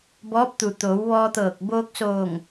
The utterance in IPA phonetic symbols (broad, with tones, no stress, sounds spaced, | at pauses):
b ɔː˧˥ p̚ t̪ u˩ t̪ oː˩˧ w ʋ ɔː˧ t̪ ɤː˧˩ k̚ b oː˧ k̚ s oː˧˩ ŋ